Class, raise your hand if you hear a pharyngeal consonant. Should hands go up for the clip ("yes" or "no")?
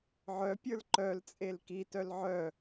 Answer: yes